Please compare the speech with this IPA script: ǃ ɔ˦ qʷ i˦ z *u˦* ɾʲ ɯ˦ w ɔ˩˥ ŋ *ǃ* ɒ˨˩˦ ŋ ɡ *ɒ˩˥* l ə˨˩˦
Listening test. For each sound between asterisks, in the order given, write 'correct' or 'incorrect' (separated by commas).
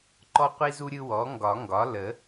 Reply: correct, incorrect, correct